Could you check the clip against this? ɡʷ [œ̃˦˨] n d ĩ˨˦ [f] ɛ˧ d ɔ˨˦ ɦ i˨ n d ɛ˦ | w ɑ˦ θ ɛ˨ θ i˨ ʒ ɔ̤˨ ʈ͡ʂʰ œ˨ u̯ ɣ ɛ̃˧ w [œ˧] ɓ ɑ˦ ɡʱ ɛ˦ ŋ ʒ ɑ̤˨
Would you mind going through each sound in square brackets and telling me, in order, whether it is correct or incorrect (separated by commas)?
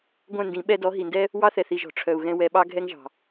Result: correct, incorrect, incorrect